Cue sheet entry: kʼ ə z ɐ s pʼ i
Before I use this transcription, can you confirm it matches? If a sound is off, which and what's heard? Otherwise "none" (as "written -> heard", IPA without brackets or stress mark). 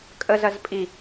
s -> z